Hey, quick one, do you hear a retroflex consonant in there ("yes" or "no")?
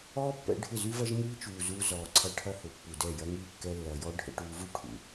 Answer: yes